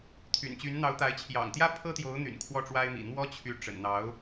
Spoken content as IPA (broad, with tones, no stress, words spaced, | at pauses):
t̪ʰy̰˨˩nt͡ɕy˧˥n n̪ɑ˧˥ʊ̯t̪a˧˥ɪ̯ t͡ɕʰjɑ̰˨˩ŋt̪jä˥ pʰɤ˥t̪jo˧˥ʊ̯n̪y̰˨˩n kʰwɔ˥˩ʈ͡ʂwa˥ɪ̯mḭ˨˩ n̪wɔ˥t͡ɕʰy˧˥ ʈ͡ʂə̰˨˩nn̪ɑ˧˥ʊ̯